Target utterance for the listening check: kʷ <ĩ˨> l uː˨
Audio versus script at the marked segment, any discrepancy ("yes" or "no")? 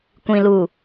no